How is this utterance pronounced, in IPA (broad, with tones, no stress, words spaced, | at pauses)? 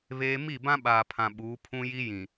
βeː˦ mi˦˨ bã˦ɓaː˨pʰã˨ ɓuː˨˦pʰũ˦ji˦ jĩ˨